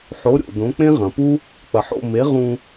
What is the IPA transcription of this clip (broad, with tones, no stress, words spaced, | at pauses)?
ħo˩˥ɾʲo̰˩ dõ˩˥k͡pẽ˥ʁɐ̃˩pu˥ | k͡pɐ˩ħo̰˥˩ me˩˥ ʁũ˧